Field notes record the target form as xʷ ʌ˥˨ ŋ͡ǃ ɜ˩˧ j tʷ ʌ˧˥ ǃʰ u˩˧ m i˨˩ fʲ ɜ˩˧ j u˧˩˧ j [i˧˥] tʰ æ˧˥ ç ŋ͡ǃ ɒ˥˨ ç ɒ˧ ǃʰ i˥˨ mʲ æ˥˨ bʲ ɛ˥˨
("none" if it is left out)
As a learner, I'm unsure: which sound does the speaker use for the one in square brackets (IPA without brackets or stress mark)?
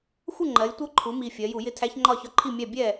ɪ˧˥